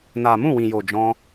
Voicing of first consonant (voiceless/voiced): voiced